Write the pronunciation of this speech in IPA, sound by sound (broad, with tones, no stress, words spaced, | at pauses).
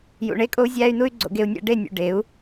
jṵ˨ ɳe˧kʼo˧u̯zʲæː˧y̯nu˧y̯ ɡ͡ǀo̰˧ɡe˧u̯nʲæ̰˦ ɖe˦˨nʲṵ˨ ɖe˨˦u̯